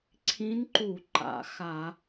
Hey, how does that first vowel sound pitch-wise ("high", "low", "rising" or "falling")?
rising